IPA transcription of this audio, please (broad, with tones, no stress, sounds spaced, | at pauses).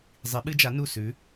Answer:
zˤ i˨˥ ɓ ɨ˦˥ d͡ʒ a˨˥ n u˦˨ s ʉ˨˥